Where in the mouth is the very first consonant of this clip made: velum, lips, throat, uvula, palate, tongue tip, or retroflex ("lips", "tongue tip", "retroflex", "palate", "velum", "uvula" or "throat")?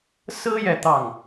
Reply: tongue tip